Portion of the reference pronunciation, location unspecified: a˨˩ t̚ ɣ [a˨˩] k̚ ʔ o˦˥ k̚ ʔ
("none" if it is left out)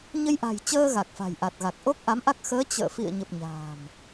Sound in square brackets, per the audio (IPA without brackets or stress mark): a˨˩